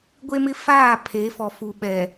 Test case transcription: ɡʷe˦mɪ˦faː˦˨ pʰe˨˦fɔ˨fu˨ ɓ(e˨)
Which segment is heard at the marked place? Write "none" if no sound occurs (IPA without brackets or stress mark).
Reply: ɛ˨